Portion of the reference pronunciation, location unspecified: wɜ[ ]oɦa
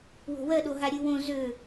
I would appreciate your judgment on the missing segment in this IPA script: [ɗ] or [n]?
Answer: ɗ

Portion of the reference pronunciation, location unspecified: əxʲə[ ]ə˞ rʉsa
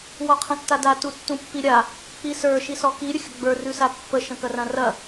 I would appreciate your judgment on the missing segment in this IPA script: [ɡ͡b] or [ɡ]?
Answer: ɡ͡b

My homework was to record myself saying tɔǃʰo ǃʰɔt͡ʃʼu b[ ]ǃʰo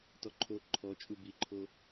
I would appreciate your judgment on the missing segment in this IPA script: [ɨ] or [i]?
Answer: i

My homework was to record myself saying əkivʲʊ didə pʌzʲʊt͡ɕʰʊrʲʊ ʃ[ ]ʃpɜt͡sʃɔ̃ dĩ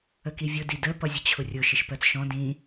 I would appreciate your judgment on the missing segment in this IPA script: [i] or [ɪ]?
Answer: ɪ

